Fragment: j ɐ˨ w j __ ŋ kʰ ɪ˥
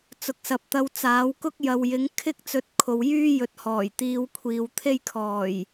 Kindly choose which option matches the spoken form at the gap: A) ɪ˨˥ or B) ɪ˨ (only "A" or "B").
A